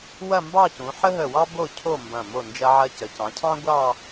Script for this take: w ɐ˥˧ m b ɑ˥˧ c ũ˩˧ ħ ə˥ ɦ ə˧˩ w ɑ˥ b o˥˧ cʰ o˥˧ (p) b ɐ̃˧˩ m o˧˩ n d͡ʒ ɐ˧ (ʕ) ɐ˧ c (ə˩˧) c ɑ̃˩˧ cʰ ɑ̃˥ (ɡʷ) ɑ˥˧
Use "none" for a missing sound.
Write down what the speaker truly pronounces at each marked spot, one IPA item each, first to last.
m, ʕ, ə˩˧, ɡʷ

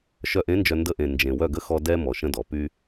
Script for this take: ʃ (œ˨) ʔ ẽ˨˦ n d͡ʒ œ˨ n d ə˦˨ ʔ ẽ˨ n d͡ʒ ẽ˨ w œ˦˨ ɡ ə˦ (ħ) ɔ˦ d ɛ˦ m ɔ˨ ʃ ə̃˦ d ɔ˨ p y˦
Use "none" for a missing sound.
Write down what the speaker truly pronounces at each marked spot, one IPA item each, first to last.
œ˨, x

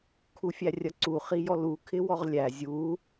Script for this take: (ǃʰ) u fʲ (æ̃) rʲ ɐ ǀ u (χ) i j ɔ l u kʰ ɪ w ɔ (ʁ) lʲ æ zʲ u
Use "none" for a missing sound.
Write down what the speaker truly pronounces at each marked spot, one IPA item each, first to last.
kʰ, æ, χ, ʁ

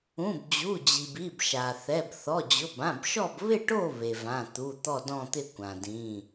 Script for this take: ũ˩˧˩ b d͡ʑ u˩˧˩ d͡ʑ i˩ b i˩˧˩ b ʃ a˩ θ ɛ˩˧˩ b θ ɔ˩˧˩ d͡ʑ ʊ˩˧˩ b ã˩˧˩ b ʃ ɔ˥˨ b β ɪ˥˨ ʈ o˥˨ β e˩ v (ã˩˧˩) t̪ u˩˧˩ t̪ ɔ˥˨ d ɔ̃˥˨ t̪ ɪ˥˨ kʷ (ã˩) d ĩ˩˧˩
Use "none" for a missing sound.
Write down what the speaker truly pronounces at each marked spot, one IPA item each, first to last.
ã˩˧˩, ã˩

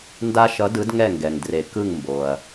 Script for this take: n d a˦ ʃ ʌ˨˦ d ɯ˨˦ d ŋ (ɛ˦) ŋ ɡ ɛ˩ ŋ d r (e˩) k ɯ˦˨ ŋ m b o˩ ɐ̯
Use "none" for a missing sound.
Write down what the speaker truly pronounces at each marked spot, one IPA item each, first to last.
ɛ˦˨, e˩

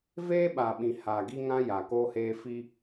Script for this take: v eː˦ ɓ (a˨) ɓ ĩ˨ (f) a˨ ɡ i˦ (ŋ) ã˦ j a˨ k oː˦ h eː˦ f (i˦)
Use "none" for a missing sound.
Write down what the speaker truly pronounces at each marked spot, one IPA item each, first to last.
a˨, h, ŋ, i˦

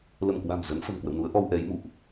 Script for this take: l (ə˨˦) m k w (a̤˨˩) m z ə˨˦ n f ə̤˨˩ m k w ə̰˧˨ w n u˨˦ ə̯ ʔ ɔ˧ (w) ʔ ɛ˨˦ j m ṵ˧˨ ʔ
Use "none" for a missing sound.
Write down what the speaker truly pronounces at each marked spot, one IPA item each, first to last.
ə˧˩, a̤˨˩, w

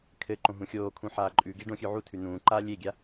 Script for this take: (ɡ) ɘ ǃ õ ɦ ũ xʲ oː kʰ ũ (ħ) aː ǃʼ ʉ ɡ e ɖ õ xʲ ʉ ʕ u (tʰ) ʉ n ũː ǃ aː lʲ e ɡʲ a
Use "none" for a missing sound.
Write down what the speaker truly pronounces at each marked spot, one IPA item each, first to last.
kʰ, ħ, tʰ

